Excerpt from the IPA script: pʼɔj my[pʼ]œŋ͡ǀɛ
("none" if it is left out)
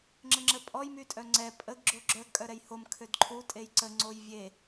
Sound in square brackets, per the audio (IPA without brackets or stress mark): tʼ